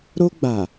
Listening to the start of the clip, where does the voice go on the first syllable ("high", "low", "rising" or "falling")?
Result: high